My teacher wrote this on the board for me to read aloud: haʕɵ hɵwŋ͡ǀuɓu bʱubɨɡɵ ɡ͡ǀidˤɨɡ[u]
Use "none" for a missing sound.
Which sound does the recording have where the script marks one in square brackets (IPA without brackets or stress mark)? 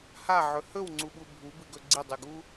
u